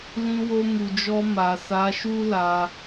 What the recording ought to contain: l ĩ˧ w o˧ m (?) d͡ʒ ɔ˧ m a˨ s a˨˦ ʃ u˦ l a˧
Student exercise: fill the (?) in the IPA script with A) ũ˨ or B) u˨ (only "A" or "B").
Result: B